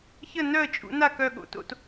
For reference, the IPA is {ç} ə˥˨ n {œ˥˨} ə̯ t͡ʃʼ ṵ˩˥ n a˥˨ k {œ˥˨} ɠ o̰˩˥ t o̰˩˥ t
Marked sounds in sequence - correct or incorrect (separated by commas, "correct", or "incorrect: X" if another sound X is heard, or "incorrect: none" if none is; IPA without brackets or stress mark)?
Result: correct, correct, correct